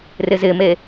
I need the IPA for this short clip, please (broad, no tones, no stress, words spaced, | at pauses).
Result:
rɪzɪme